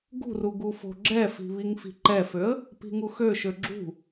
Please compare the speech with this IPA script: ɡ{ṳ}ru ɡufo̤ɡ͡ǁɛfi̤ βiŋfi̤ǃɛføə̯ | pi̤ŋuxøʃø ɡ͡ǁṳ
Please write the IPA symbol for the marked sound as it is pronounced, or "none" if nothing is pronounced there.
ṳ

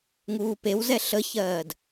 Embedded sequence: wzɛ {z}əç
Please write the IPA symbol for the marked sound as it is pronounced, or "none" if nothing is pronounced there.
ɬ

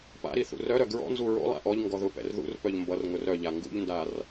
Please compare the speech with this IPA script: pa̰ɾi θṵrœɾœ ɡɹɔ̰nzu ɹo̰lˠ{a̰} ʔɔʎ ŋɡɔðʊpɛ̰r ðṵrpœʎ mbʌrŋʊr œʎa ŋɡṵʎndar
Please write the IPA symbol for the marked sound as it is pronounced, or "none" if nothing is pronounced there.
a̰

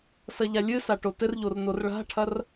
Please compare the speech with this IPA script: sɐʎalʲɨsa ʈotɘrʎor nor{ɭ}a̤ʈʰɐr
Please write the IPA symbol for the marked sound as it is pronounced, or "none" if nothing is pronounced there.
ɭ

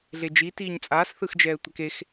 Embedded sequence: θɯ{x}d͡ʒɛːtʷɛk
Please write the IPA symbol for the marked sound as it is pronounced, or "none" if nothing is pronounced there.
x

